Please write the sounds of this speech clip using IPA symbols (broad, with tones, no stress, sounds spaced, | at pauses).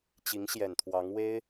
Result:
t͡ɕ i˧˥ ŋ ɕ j ɛ˨˩ n t̪ʰ w ɑ˧˥ ŋ w e˥ ɪ̯